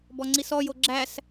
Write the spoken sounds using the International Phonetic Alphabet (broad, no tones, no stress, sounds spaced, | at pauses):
b ɔ ŋ͡ǀ i s ɔ j o ɡ͡ǁ æ s